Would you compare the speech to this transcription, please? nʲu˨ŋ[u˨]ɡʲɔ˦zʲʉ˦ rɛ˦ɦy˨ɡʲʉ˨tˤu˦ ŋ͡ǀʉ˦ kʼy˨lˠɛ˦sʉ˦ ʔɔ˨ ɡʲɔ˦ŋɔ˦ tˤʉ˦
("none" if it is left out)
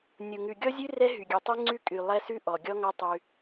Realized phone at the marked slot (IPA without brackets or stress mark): ʉ˨